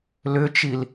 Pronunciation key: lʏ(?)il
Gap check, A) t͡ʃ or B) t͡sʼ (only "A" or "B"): A